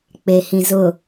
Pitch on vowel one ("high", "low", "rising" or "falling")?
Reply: low